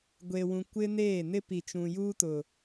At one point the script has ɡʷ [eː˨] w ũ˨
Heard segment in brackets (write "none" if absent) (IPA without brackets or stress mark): e˨